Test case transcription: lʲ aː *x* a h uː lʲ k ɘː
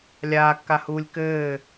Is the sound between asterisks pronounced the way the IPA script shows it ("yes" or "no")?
no